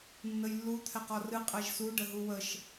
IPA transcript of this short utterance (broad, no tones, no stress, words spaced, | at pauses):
nːəjlːu t̪ʰɛqɔrɨ qʼɛʒsu ɖəɦuwəʃ